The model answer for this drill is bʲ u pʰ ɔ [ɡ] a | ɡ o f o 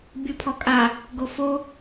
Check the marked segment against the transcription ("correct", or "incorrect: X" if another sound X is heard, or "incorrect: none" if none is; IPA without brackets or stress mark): incorrect: kʼ